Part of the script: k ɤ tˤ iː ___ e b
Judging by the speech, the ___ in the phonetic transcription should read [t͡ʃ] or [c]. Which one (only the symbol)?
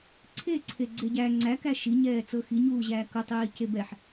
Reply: c